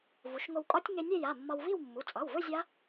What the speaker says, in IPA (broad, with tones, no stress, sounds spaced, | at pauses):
v u˩˧ ʃ ŋ o˧ w kʼ ɒ˦˥ tʲ ŋ e˧ nʲ e˥˧ j a˩˧˩ mː ɒ˧ w v i˥˧ w mː u˩˧˩ t͡sʼ ɑ˩˧˩ w v ɵ˥˧ zʲ a˦˥